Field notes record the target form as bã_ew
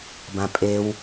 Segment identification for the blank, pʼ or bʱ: pʼ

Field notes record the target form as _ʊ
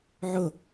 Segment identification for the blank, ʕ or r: ʕ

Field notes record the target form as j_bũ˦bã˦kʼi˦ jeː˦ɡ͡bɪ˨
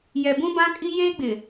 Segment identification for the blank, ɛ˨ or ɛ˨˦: ɛ˨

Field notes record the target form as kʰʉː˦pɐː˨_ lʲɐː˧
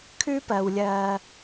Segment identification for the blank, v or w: w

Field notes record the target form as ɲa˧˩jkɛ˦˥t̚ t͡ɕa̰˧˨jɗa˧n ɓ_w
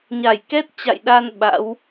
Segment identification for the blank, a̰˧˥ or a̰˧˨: a̰˧˥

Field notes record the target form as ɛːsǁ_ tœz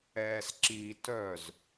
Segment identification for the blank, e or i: i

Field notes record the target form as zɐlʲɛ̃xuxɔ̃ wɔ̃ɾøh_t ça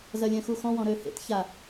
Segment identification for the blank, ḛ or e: ḛ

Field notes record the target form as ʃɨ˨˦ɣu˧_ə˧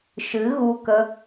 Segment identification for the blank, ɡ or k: k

